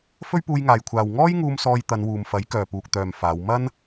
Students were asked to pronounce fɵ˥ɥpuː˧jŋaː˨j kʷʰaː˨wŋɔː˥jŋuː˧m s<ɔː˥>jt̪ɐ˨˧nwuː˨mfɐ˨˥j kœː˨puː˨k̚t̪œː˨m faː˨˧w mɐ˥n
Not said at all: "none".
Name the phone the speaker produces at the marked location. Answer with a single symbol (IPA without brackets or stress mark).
ɔː˧